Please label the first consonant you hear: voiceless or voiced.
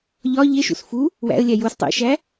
voiced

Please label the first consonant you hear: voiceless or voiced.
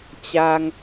voiceless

